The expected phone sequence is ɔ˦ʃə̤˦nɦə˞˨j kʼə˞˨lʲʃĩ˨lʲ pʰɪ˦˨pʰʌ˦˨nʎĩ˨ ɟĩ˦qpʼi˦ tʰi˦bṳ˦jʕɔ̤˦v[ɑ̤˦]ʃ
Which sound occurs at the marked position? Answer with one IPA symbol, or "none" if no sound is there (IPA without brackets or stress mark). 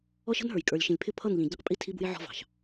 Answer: ɑ̤˨